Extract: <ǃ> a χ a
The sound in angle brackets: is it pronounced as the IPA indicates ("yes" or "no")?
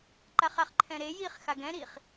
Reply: yes